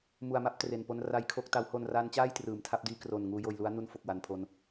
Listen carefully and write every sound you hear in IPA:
m u˨˩ a̯ m a˦˥ p̚ t r e˨˩ n p o˧ n r a˦˥ j kʰ o˦˥ k̚ t a˦˥ w h o˧ n r aː˦˥ n t͡ɕ aː˥˩ j t r ɯː˩˦ m tʰ a˦˥ p̚ d iː˦˥ k r o˨˩ n ŋ uː˦˥ j oː˧ j l u˦˥ a̯ n u˦˥ n f o˨˩ k̚ w a˨˩ n pʰ o˧ n

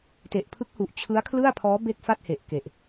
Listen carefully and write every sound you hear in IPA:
t e˨˩ ʔ pʰ ɯ˦˥ k̚ h u˨˩ ʔ t͡ɕʰ ɯ˦˥ a̯ kʰ l ɯ˥˩ a̯ pʰ ɔː˦˥ b e˥˩ k̚ f a˥˩ t̚ h e˨˩ ʔ k e˨˩ ʔ

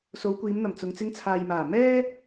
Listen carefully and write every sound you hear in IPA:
s o˨˧ w kʷ iː˨˧ m n̪ ɐ˨˩ m t͡s ʊ˨ ŋ t͡s ɪ˧ ŋ t͡sʰ aː˨ j m aː˨˩ m ɛː˧

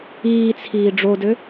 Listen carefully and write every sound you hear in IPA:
iː t͡sʰ iː ɖ͡ʐ o d ø

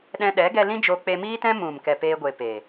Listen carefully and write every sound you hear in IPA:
ɗ ɛ̃˧ ɗ ɛ˨˦ ɡ ɛ˧ l ĩ˦ d͡ʒ o˧ k͡p e˧ m iː˦ t ɛ̃˦ m ũ˨ m k ɛ˨ p eː˧ ɡʷ e˨ p e˨

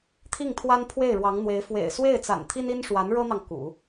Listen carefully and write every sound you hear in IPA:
t̪ʰ i˥˩ ŋ t̪ʰ w a˥ n pʰ w e˥˩ ɪ̯ ɻ w ɑ˧˥ ŋ n̪ w e˧˥ ɪ̯ f w ḛ˨˩ ɪ̯ s w e˥˩ ɪ̯ t͡s a̰˨˩ n t̪ʰ i˥ n i˥ n ʂ w a˧˥ n ɻ ɤ˥ n̪ ɑ˨ ŋ k ṵ˨˩˦

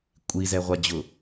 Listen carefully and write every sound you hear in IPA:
kʷʼ i z ɛ ʁʷ a d͡ʑ ʊ

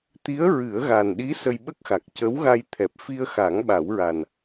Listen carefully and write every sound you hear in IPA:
t̪ i˧˥ ə̯ ɹ ɨ˨˩˦ ə̯ ɣ a˨˩ n ɗ i˧˥ s ə˧ j ɓ ə˦˥ k̚ x a˨˩ k̚ c ə˧˥ w ɣ a˧ j t̪ʰ ɛ˨˩ p̚ f i˧ ə̯ x a˨˩˦ ŋ ɓ a˨˩˦ w ɹ a˨˩ n

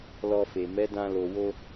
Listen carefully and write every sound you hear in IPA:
l ɔ˧ f e˨ m ɛ˨˦ d ã˧ l o˨ w o˧

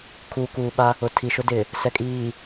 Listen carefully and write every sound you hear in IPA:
kʰ uː˨ k uː˨ ɓ a˦ | ʊ˨ tʰ i˨ ʃ ʊ˦ d ɪ˨ | s ɛ˨ kʼ iː˨

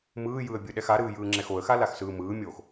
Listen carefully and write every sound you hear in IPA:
m ɯː j ɯ ə̯ bʲ ɯ ɗ ɛ x a ɾ ɯː j ɯː ŋ͡ǁ ɛ x o ə̯ x a l a x s ɯː m ɯː mʲ oː x

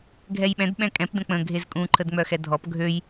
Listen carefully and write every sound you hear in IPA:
ɡʱ ɛ j ɓ ɛ̃ d ɓ ɛ̃ kʼ ɛ̃ p d ə̃ k͡p ə̃ ɡʱ e z kʼ ũ ǃʰ ə d ŋ͡m œ x ɛ dʱ ɔ p ɡʱ ø j

